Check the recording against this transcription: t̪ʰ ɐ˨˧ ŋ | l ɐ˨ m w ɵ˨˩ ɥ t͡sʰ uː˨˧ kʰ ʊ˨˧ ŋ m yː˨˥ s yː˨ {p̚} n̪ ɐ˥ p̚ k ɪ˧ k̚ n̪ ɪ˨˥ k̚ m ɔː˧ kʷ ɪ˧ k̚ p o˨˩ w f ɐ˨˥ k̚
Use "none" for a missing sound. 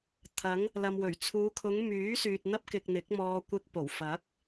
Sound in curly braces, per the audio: t̚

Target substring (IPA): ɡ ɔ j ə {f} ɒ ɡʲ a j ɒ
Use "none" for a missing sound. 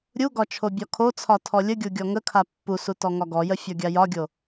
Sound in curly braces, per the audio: fʲ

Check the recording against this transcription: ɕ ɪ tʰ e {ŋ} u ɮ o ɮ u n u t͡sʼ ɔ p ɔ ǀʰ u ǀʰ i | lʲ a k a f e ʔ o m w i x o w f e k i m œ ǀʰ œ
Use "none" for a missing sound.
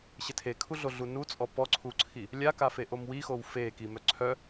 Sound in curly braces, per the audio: kʰ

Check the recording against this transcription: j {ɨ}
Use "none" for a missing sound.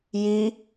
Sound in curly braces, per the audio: i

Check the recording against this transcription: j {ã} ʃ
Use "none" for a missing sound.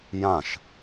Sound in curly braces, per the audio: ã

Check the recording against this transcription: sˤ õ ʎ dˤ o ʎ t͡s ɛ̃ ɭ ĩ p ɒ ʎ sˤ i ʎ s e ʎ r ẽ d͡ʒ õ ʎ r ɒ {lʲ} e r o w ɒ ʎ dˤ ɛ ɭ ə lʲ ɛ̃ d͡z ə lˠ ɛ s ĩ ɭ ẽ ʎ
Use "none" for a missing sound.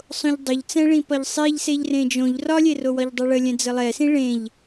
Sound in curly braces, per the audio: lʲ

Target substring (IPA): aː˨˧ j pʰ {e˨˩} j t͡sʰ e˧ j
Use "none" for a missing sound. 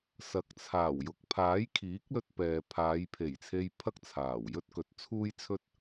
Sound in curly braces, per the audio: e˨˩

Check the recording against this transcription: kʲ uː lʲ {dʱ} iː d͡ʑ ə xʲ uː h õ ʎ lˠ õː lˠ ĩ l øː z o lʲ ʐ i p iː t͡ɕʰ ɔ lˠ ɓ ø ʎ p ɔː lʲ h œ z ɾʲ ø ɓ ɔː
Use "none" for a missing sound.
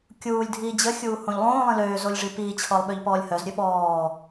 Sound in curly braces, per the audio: dʱ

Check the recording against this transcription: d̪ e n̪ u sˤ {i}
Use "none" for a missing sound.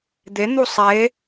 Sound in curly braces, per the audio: e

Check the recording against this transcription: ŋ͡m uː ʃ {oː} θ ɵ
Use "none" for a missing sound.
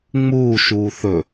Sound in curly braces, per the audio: uː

